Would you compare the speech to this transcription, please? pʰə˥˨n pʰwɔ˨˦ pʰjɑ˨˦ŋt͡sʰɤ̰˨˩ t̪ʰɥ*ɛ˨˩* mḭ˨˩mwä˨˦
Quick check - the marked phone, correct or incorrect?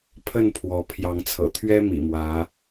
incorrect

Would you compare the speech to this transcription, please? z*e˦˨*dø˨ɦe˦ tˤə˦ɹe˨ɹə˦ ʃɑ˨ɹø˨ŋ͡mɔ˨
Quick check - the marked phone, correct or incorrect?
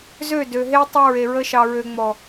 incorrect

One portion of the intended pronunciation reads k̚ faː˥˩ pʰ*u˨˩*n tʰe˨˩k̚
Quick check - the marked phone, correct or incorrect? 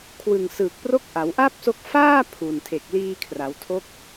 correct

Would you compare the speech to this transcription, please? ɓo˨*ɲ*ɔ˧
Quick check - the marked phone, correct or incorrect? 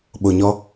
correct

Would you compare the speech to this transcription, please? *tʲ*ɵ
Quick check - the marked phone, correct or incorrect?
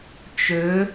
incorrect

